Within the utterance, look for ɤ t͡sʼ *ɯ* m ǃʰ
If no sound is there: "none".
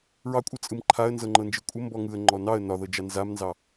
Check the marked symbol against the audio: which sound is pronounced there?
ɯ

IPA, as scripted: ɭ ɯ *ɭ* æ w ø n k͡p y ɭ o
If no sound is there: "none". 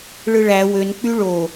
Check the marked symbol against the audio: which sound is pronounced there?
ɭ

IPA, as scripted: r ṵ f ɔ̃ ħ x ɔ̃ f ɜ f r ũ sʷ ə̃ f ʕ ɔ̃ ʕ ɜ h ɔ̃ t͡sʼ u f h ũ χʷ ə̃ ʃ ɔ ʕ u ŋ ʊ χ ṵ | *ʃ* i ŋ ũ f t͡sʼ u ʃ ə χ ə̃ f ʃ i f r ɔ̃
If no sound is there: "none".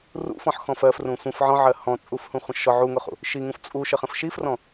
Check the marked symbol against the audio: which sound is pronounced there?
ʃ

